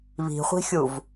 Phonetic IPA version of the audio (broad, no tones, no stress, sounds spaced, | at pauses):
β i̤ χʷ i̤ xʲ u v